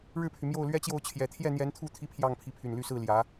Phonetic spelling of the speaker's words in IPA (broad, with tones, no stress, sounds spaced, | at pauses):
ɻ ɻ̩˥˩ pʰ y˩ m j o˥˩ ʊ̯ l ɥ ɛ˥ t͡ɕ j o˥˩ ʊ̯ t͡ɕʰ j ɛ˨˩ t̪ʰ j ɛ˥˩ n̪ j ɛ˧˥ n t̪ʰ u˥˩ t̪ʰ i˥ pʰ j ɑ˥˩ ŋ pʰ i˧˥ pʰ y˨˩ n l y˥˧ s ɹ̩˥˩ l j ä˧˥